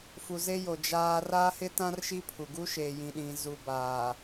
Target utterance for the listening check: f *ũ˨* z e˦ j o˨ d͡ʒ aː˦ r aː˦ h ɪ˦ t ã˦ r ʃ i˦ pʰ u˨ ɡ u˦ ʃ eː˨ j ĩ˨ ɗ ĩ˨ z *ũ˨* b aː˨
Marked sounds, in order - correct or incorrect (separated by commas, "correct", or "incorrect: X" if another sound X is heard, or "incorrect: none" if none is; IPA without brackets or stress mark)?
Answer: incorrect: u˨, incorrect: u˨